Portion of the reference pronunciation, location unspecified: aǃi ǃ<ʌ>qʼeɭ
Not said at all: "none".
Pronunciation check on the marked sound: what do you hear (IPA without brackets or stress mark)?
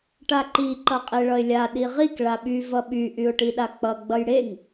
ʌ